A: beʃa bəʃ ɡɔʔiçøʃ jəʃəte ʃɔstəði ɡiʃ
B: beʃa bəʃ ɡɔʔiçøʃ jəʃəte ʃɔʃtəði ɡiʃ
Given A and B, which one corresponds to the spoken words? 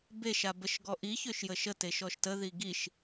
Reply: B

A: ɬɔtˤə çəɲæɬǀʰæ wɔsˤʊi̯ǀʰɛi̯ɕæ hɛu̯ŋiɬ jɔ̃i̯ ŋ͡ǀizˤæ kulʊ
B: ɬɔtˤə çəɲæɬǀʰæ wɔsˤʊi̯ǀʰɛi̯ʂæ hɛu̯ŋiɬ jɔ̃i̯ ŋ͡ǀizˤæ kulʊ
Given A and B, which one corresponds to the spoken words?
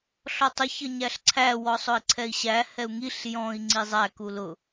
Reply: A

